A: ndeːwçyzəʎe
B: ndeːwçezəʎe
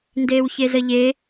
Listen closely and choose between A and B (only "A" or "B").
B